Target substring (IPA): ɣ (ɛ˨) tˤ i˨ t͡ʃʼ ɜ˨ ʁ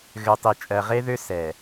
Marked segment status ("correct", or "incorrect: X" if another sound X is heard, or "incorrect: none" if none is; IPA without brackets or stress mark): incorrect: ø˨